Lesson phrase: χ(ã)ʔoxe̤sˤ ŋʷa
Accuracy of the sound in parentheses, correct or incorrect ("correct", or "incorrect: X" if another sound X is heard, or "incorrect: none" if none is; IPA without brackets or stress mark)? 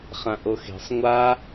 correct